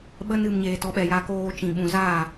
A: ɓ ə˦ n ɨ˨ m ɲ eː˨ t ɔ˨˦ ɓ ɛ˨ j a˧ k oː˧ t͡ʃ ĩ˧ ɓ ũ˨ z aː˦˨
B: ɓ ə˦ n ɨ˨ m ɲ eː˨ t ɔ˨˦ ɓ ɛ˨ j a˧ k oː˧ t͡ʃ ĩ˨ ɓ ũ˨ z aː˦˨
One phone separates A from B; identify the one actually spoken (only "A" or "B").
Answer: B